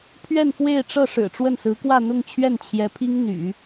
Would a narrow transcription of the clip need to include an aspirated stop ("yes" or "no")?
yes